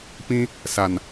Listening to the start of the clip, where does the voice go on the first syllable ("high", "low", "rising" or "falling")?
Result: high